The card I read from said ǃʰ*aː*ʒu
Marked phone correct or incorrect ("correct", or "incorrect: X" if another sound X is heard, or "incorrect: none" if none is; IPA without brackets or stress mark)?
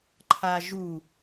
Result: correct